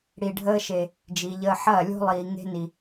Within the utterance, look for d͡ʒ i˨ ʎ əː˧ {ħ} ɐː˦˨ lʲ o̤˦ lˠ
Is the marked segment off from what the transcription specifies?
no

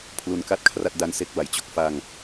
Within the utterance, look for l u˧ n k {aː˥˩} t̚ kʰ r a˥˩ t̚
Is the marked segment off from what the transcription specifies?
yes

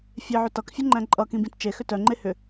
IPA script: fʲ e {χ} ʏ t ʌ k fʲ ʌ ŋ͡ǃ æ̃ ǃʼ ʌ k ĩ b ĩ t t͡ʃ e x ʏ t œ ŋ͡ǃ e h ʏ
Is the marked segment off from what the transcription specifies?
yes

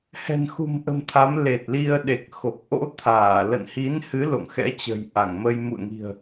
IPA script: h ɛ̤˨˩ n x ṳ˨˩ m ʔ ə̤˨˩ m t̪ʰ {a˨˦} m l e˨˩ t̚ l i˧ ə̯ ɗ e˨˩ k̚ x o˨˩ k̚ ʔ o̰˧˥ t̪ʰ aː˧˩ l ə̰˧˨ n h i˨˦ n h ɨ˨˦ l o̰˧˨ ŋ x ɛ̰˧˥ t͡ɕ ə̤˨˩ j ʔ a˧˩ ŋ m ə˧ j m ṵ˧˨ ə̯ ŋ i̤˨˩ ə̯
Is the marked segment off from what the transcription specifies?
no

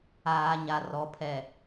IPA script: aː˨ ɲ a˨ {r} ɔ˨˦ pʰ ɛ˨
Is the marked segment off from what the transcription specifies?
no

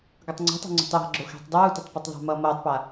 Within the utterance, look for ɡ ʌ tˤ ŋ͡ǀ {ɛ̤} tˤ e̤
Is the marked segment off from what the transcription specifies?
no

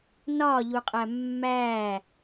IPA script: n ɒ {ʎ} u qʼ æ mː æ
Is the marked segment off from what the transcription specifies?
no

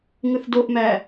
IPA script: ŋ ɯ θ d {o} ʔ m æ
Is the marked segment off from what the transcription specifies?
no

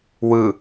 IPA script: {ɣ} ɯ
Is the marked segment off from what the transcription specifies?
yes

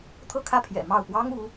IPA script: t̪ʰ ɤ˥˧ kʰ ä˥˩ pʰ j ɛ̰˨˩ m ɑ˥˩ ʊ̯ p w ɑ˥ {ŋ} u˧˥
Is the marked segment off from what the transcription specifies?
no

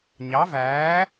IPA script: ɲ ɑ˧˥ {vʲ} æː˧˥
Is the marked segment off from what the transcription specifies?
yes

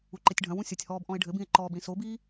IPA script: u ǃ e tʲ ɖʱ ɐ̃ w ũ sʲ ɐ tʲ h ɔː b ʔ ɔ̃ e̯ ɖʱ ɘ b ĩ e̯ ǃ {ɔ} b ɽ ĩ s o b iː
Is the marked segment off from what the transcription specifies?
yes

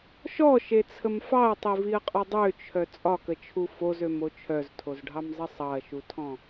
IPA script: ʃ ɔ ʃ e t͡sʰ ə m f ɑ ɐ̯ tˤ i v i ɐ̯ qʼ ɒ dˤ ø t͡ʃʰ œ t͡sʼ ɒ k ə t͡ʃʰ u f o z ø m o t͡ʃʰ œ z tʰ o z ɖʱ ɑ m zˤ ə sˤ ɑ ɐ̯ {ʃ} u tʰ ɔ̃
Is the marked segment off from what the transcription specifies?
no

